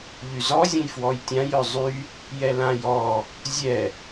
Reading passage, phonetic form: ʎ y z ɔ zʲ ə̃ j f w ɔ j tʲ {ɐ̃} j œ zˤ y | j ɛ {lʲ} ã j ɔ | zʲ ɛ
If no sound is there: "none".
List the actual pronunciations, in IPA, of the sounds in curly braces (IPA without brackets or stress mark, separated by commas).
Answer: ã, l